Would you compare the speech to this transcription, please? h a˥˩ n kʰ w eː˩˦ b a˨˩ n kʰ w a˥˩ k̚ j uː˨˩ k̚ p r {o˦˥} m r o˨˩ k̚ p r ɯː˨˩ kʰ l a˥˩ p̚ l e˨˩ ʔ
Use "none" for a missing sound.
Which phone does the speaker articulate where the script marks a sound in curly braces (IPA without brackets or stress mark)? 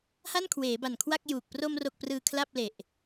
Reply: o˧